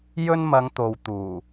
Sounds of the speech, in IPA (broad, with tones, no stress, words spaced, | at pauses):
jɵ˥nmɐ˨˧ŋt̪o˨w t̪uː˨˩